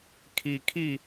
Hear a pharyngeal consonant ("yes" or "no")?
no